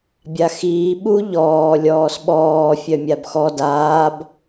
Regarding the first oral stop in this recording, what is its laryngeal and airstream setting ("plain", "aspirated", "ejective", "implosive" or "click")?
plain